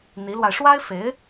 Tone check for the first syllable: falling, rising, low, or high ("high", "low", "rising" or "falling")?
rising